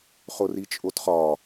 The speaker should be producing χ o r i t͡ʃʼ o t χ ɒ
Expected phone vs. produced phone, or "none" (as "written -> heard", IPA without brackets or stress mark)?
none